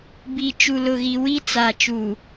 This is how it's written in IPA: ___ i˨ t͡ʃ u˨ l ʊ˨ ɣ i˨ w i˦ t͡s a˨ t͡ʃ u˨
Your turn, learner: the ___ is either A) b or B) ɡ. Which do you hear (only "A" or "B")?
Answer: A